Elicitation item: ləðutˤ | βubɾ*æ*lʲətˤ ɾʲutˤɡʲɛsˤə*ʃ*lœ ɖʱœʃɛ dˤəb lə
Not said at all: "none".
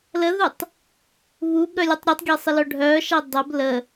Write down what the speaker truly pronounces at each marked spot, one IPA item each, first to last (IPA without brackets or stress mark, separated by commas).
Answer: œ, none